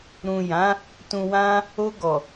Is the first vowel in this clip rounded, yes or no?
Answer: yes